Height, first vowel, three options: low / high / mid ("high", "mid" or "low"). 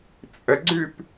mid